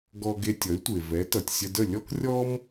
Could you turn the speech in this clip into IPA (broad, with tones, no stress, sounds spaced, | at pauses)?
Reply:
ɡ ɔ˧ ɡ e˧ tʲ ʌ˩˥ y̯ tʷ e˩ v ɛ˩˥ t ʌ˩ tʲ sʲ ə˧ d ə˥˩ lʲ ɔ˥ k rʲ ɔ˥ m